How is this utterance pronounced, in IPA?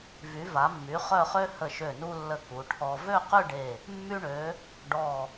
v y˩˧ v a˩˧ mː y˩˧ χ œ˥˧ χ ø˥ h ə˧˩ ʃ ø˧˩ n u˧ lː ə˧˩ k u˩˧ ʈʰ ɔ˧ v ø˥˧ q y˥˧ ɖ e˧˩ | mː y˧ ɳ ø˩˧ | ɖ ɔ˧˩

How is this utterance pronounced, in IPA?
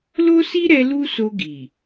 l o˦ s i˦ ɾ ɛ˧ l u˦ s o˧ ɡ i˨

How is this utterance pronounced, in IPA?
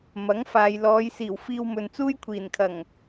m ɐ˨˥ ŋ f aː˨ j l ɔː˨˧ j s iː˨˩ w f iː˧ w m ɵ˨ n t͡s uː˥ j kʷʰ iː˨˩ n kʰ ɐ˨˩ ŋ

